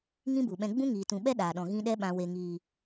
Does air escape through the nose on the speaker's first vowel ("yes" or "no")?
yes